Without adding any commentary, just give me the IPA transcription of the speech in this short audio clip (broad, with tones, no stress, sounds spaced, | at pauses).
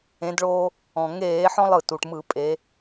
ẽ˨˦ d ɭ oː˦ | ɔ̃˩ ŋ eː˧˩˧ ħ ɔ̃˦ lˠ ɯ˩ t u˩ ʈ m ɯ˧˩˧ pʼ e˨˦